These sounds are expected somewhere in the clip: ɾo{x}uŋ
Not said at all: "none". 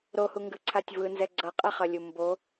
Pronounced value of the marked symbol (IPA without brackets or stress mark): h